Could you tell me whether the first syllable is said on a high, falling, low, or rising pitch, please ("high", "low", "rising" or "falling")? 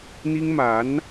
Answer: high